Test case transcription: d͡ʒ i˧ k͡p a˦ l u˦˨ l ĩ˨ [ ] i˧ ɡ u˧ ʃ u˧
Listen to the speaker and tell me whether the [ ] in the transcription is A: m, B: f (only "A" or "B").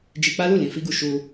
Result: B